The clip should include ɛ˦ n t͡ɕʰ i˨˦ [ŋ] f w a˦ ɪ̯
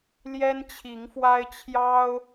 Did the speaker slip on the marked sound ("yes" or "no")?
no